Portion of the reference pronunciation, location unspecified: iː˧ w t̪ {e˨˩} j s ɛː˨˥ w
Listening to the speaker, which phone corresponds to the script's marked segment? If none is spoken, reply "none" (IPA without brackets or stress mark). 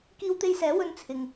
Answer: e˧